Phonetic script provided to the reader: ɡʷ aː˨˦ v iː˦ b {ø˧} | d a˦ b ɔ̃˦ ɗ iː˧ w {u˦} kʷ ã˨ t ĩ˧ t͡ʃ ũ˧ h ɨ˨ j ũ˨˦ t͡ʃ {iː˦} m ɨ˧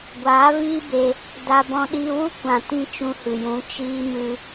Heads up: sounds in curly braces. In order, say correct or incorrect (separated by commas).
incorrect, correct, correct